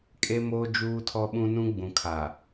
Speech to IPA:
kʼ e˦ m oː˦ d͡ʒ uː˦ tʰ ɔ˦ ɓ ũ˦ n ũ˦ ɡ͡b ũ˨ kʰ a˨

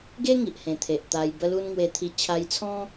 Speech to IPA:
ɡ e˦ ŋ i˨ ʔ h ẽ˨˩ t̪ʰ e˨ ʔ t̪ a˧ j b ə˧ l u˧ n ŋ w e˧ t̪ʰ i˧ t͡ɕʰ a˧ j t͡sʰ ɔ̃˦

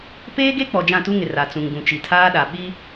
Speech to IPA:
p eː˦ ɡ e˦ k͡p ɔ˨ d͡ʒ ã˦˨ t u˦ ŋ ɪ˨ r a˨ t͡s ũ˨ ŋ ɡ ũ˨ t͡ʃ i˨ tʰ aː˦ ɗ a˨ ɓ i˦

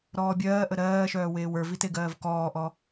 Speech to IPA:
ɾ ɔː bʲ ɜː ʔ ə ɾ ɜː ʃ œː w eː w ə˞ v i t e ɡ ɜː v k ɔː ʔ ɔ

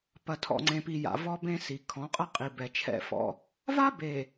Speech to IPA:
p ɐ˨ tʰ ɔ̰˨ ŋ͡ǀ ẽ˨ p i˨ j a̰˨ v ɔ˦ b ẽ˦ s i˨ kʰ ɔ̃˨˦ qʼ ɐ˦ qʼ i˨ b ɛ˨ t͡ʃʰ ɛ̰˦ f ɔ̰˦ | v a˦ b e˨

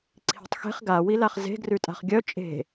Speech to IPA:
ǀʰ i̤ tˤ x e̤ χ ɡ a w i l a χ z e̤ ɡ r ʉ tʼ a̤ χ ɡʲ œ t͡ʃʼ e̤

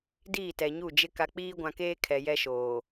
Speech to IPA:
d iː˦˨ t ɛ˨ ɲ u˦˨ d͡ʒ ɪ˦ k a˨ k͡p iː˦ ɡʷ ã˨ k eː˦ kʰ ɛ˨ j ɛ˦ ʃ oː˨

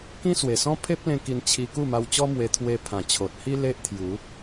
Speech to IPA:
k ĩ˦ s w e˨˩ s ɔ̃˦ pʰ e˦ p̚ l ẽ˧ k i˧ n t͡ɕʰ i˧ k u˥˧ m a˧ w t͡ɕ ɔ˦ m w e˧ t̪ʰ w e˧ pʰ ã˨˩ t͡ɕʰ o˨ t̚ h i˦ l e˦ ʔ t̪ʰ j u˨˦

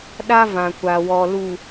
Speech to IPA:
ɗ a˦ v ã˨ kʷ a˨ w ɔ˨ l u˨

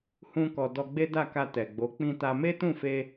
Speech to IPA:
h ũ˦ k ɔ˧ d ɔ˧ ɡ͡b e˦ d a˦˨ k a˧ t ɛ˨ ɡ͡b o˨˦ k͡p ĩ˧ t a˧ m e˦ t ũ˦˨ f e˧

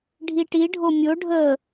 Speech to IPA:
ɖʱ i ʈ i ɖʱ o mʲ o ɖʱ ə

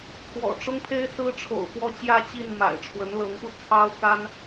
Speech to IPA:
kʰ w ɔ̰˨˩ ʈ͡ʂ ʊ˥ ŋ pʰ e˥ ɪ̯ s ɹ̩˥ ʈ͡ʂʰ o̰˨˩ ʊ̯ f w ɔ˥˧ t͡ɕ j ä˥˧ t͡ɕ i˥˩ n m a̰˨˩ ɪ̯ ʈ͡ʂʰ w ə˧˥ n l ɤ˧˥ ŋ p u˧ t͡sʰ ɑ˥ ʊ̯ k a˥ n

